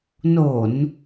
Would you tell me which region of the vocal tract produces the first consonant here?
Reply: tongue tip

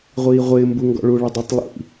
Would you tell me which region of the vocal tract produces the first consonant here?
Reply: uvula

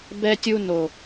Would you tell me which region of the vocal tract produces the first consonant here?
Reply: lips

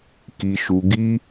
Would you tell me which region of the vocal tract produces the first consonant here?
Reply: velum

